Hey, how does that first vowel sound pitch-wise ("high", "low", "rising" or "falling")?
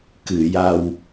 low